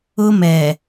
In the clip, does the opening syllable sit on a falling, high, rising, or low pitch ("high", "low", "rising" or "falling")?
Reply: high